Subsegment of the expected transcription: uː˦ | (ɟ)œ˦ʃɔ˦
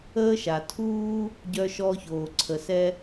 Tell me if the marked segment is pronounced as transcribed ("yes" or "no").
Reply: yes